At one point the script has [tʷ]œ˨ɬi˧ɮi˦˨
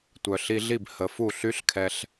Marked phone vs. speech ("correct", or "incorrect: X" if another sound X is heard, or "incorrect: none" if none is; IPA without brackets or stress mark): correct